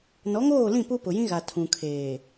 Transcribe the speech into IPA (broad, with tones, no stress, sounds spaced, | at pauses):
n ɔ˨˦ ŋ oː˦˨ l ĩ˦˨ p u˦ p ʊ˨ j ĩ˦ ɣ a˨ tʰ ũ˨ kʰ eː˨